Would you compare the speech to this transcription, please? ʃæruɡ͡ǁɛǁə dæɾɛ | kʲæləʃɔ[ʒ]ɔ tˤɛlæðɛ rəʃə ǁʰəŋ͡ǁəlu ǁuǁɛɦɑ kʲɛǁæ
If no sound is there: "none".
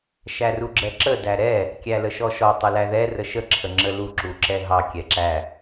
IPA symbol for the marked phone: ʃ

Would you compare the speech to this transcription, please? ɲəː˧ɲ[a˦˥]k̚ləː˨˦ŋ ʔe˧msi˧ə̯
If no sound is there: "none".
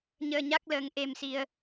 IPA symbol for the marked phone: a˦˥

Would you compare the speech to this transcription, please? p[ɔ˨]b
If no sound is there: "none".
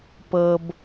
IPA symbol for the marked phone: ɤ˨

